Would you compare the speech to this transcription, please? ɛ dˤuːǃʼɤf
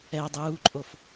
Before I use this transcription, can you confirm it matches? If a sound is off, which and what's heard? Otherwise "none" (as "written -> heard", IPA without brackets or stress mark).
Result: ɤ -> o